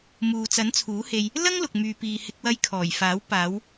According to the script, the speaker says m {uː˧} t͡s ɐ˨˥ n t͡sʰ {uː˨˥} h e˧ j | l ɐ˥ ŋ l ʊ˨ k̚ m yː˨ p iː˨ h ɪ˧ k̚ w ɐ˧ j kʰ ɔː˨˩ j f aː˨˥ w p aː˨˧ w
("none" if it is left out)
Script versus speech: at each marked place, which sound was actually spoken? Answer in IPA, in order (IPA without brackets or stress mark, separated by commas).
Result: uː˨, uː˨˥